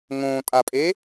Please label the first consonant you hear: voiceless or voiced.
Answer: voiced